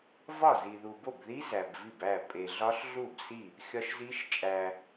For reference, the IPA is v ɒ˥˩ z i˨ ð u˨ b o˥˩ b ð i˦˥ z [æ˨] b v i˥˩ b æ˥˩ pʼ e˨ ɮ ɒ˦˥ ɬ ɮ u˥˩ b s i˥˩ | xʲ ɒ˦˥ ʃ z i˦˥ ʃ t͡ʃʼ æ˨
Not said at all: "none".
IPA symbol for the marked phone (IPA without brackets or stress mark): æ˨